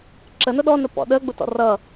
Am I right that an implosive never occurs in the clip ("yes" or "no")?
no